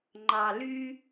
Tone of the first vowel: low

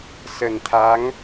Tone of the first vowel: low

